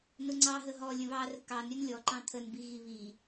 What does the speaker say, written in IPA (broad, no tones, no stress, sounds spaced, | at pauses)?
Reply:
n ʊ ŋ͡ǀ ɑ ɦ ə ɦ ɔ lʲ ə̃ β ɑ r ə̤ k ɑ n ɾʲ ɵ n lʲ ɔ ǃ ɑ̃ t̪ʰ ə n b i ɣ i β i